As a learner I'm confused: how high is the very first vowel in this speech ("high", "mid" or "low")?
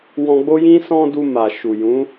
mid